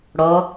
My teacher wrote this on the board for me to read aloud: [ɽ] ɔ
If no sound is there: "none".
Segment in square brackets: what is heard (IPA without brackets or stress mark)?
ɽ